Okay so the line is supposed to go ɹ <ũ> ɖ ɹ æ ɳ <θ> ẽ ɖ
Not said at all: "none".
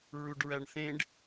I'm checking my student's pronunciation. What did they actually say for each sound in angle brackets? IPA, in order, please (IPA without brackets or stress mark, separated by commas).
u, θ